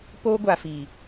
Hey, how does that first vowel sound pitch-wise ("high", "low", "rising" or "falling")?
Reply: high